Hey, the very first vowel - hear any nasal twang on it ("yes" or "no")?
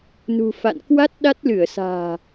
no